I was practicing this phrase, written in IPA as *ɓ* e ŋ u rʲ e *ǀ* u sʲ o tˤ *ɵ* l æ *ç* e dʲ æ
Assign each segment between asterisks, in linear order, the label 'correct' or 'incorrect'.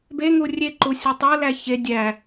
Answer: incorrect: b, incorrect: ǃ, incorrect: o, correct

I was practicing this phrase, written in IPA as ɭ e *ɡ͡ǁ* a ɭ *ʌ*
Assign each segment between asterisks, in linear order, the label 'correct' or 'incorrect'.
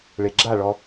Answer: correct, incorrect: ɔ

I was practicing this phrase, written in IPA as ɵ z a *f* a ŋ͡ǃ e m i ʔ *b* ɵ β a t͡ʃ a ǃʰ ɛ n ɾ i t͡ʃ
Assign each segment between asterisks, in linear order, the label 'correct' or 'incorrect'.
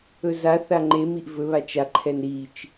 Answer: incorrect: θ, incorrect: v

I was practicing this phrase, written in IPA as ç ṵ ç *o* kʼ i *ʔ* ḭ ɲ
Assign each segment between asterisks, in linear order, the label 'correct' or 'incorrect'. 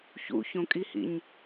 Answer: incorrect: õ, incorrect: h

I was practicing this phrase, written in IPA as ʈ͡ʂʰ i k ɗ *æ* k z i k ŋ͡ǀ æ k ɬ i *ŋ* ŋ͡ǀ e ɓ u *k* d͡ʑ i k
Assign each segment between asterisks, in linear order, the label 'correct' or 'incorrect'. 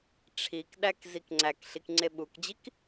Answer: correct, incorrect: k, correct

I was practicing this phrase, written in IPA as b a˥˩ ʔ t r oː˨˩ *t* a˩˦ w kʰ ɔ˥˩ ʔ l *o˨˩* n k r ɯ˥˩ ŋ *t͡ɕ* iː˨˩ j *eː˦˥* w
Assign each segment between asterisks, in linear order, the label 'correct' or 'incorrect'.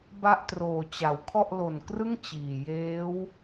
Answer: incorrect: t͡ɕ, correct, correct, correct

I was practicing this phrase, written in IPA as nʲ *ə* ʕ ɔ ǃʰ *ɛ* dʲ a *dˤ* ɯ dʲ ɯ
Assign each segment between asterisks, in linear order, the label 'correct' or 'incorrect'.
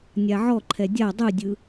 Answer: incorrect: a, correct, correct

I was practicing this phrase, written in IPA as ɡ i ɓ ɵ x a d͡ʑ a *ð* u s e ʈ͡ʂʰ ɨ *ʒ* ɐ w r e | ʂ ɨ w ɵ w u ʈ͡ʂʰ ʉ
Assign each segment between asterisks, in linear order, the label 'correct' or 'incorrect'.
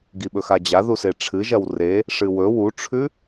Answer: correct, correct

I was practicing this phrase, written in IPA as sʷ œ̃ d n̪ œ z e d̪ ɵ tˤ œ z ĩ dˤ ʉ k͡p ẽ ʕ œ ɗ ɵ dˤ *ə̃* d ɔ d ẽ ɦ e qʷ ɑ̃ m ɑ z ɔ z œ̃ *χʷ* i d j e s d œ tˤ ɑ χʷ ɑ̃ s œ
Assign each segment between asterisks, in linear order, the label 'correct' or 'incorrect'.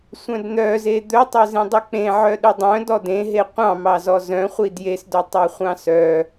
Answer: incorrect: œ̃, correct

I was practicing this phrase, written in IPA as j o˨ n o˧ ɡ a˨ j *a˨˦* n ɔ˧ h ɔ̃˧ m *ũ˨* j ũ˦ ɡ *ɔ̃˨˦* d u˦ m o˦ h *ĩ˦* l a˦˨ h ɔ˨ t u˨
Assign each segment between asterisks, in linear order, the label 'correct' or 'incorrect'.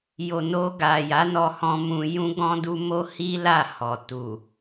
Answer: correct, incorrect: ũ˧, incorrect: ɔ̃˦, incorrect: i˦

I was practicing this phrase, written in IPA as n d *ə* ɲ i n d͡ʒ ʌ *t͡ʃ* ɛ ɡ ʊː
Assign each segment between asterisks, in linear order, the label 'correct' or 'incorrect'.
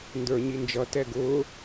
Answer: incorrect: ə˞, incorrect: t

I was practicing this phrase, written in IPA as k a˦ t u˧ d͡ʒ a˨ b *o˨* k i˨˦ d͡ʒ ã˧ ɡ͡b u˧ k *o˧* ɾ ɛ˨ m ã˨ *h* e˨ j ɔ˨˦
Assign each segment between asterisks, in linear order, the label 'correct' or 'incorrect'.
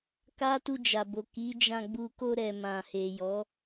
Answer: correct, correct, correct

